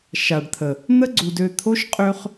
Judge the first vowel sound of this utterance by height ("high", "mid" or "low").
low